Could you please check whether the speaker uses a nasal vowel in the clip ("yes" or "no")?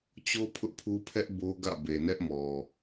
no